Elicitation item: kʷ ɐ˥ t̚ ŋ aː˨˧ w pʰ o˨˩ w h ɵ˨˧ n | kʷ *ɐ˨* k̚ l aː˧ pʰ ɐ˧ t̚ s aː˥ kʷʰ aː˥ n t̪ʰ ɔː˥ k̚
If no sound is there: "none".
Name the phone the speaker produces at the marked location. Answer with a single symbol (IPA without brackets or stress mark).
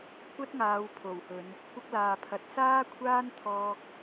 ɐ˥